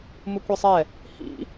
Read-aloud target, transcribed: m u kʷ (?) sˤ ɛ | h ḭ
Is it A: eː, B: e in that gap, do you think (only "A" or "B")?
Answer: B